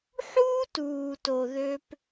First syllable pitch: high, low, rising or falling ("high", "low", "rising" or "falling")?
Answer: high